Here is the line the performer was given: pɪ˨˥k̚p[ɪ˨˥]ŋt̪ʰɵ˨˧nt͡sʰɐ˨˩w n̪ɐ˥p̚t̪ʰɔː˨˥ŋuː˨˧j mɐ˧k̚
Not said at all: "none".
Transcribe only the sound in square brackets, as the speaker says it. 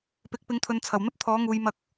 ɪ˨˥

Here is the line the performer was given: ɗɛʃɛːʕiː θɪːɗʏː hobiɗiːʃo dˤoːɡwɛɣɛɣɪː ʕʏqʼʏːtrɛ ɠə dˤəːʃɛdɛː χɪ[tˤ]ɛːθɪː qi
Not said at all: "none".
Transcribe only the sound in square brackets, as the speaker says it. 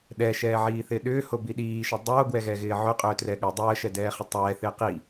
tˤ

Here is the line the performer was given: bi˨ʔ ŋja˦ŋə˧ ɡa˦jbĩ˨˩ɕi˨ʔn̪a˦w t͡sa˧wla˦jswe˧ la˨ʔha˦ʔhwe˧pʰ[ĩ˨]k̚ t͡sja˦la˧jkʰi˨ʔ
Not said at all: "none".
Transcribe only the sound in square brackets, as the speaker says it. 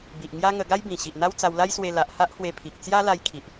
i˨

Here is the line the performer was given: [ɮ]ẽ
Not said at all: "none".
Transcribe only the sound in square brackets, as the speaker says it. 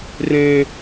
r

